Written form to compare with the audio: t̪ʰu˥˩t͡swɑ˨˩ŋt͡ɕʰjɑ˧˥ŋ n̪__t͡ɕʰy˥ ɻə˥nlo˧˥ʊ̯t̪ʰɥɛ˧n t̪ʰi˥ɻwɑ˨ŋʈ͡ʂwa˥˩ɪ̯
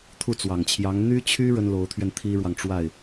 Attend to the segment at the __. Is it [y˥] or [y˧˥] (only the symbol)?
y˥